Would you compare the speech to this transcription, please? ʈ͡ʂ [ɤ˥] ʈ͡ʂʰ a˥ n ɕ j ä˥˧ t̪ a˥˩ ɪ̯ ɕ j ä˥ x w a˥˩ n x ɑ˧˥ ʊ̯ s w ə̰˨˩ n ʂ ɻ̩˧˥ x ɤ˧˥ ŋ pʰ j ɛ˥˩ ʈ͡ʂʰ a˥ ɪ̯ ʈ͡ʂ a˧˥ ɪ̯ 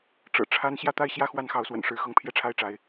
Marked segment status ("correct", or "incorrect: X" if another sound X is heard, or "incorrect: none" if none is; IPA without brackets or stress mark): incorrect: ɤ̰˨˩